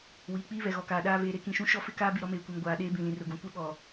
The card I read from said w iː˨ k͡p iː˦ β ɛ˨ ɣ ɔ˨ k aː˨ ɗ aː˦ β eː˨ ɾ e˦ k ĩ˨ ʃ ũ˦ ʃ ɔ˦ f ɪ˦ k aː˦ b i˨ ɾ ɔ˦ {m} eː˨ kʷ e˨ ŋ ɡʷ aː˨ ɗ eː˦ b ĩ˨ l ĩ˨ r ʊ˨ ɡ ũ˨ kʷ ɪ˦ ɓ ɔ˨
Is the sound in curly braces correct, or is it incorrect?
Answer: correct